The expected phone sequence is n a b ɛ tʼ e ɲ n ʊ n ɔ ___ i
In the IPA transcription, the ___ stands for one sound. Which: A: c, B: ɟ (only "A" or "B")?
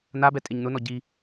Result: B